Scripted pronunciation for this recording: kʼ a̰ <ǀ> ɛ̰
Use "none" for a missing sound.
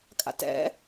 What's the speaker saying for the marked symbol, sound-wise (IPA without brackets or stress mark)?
t